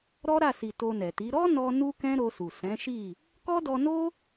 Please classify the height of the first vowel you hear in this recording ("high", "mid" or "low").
mid